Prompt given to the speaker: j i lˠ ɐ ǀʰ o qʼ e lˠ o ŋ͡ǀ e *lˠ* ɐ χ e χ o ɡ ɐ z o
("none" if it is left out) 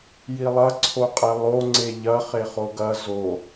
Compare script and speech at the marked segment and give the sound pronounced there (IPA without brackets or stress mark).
ʎ